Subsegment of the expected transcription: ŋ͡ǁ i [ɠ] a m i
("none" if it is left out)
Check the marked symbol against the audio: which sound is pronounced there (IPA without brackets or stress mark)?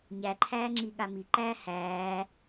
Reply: ɠ